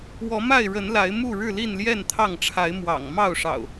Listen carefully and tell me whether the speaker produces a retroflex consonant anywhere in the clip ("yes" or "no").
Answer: yes